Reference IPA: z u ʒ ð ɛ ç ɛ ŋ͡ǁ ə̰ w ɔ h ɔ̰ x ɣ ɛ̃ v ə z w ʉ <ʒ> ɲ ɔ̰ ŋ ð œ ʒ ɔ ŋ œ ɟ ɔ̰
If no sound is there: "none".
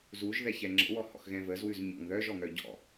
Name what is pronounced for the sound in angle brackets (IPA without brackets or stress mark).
z